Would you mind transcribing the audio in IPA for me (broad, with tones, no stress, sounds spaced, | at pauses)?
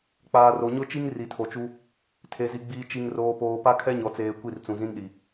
k͡p aː˨ r o˨ ɲ ʊ˦ t͡ʃ i˦ ŋ r i˨ tʰ o˨ t͡ʃ u˦ | tʰ e˨ z i˨ ɡ͡b iː˨ t͡ʃ i˨ ŋ r oː˨ p oː˨ p a˦ kʰ ɛ˦ ɲ ɔ˨ t͡s eː˨ kʷ i˦˨ r t͡s ũ˨ z ĩ˦ n ɗ i˨